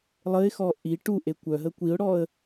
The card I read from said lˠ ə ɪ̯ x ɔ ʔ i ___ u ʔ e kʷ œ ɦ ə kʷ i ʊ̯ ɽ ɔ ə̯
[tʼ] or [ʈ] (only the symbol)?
ʈ